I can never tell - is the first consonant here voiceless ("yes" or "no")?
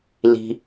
no